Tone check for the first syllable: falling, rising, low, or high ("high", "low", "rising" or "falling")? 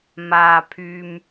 low